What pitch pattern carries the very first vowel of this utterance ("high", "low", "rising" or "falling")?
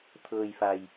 low